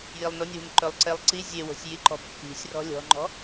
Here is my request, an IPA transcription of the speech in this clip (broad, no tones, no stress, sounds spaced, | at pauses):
j i lˠ n o nʲ w i̤ n ǃ ɵ lˠ ǀ e lˠ ǀ i zʲ e w o̤ sʲ j i ǃ ɔ̤ pː i̤ sʲ r ɔ̤ lʲ ɔ̤ ŋ͡ǃ ɔ̤